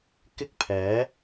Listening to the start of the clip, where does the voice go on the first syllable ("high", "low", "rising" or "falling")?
high